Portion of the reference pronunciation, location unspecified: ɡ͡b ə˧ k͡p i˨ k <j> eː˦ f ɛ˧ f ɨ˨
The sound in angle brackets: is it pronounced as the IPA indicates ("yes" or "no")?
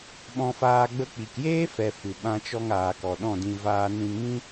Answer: yes